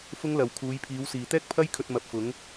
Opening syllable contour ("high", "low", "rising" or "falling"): high